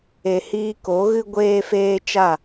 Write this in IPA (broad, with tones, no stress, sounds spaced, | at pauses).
e˨ h iː˧ k o˨˦ ɣ ɨ˦ ɡʷ eː˧ f eː˧ t͡ʃ a˦˨